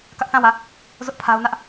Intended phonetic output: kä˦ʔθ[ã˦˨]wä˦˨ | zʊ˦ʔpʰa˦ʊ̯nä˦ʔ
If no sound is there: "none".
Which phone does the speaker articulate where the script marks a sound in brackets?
ã˦˨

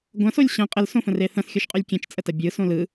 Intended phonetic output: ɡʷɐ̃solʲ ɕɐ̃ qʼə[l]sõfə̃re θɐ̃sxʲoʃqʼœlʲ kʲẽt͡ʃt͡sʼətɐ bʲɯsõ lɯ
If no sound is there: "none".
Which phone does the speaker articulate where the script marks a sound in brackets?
l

